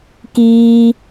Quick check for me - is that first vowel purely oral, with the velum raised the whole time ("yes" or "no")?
yes